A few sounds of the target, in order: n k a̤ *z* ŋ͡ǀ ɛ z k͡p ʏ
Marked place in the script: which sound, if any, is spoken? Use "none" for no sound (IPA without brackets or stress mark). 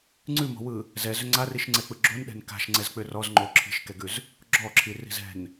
ʃ